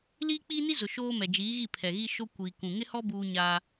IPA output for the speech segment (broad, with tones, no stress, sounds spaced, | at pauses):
l iː˦ k͡p iː˦ n i˦ z ʊ˨ ʃ oː˦ m ɛ˨ d͡ʒ iː˨˦ ɣ i˦˨ pʰ ɛ˨ ɣ i˦ ʃ o˦ kʷ iː˨ k ũ˨ ŋ ɪ˦ h ɔ˦ b uː˦ ɲ aː˦